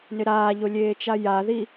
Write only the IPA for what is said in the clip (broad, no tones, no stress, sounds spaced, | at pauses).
n ɪ ɾ aː ʎ o lʲ eː t͡ʃ a j a ð i